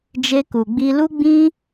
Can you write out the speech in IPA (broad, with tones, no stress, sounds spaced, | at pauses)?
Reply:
d͡ʒ e˧ k u˨ ɡ͡b i˧ l u˦ ɡ͡b ĩ˦